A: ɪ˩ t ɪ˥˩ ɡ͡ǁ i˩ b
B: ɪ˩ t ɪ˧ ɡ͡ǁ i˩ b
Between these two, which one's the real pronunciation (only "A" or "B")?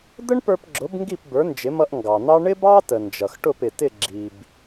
A